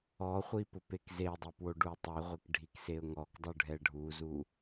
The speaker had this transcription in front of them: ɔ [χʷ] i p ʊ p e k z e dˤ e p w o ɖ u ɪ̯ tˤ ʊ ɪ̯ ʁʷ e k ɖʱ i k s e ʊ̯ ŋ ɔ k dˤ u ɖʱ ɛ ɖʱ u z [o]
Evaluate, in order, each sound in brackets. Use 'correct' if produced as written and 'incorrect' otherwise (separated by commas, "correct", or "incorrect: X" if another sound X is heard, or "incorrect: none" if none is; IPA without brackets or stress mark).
correct, incorrect: u